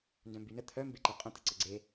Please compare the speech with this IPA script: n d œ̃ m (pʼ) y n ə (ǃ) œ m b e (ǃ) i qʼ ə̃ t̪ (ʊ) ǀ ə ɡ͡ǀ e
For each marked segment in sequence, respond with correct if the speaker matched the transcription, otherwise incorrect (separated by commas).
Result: incorrect, incorrect, correct, incorrect